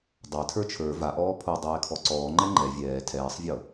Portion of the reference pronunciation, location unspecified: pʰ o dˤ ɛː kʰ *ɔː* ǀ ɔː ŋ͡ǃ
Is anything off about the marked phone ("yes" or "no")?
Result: yes